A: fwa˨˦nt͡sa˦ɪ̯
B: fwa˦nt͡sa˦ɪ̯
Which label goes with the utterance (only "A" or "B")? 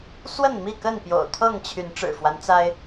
B